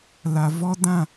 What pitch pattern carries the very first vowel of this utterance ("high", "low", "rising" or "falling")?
low